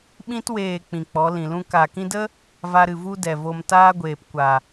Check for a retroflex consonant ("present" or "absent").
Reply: absent